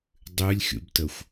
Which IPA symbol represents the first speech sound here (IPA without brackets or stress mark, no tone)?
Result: dˤ